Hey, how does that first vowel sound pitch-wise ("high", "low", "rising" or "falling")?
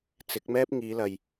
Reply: rising